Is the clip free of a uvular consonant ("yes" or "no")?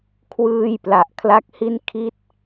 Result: yes